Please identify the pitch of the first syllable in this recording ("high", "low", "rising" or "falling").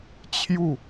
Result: falling